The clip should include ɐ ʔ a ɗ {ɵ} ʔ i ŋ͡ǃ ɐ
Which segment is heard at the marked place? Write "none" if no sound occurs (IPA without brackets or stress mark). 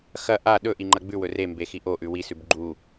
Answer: ɵ